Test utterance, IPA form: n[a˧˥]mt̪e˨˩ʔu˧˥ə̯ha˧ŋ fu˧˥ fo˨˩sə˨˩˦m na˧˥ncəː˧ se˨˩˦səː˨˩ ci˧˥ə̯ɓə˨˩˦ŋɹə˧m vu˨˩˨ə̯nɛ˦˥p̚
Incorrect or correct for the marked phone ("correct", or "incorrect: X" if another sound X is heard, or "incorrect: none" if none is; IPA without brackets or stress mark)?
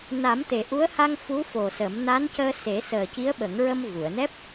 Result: incorrect: a˨˩˦